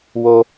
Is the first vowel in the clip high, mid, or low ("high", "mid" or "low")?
mid